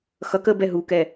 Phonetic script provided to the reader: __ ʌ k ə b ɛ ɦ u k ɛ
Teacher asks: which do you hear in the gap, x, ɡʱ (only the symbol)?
x